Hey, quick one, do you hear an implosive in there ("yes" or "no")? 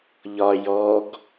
no